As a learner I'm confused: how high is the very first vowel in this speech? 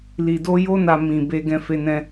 high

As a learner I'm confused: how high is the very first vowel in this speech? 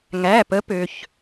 low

